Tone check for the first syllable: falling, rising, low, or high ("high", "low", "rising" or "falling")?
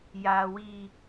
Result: high